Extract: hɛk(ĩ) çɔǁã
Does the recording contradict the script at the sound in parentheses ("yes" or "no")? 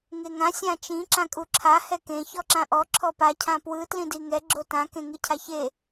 yes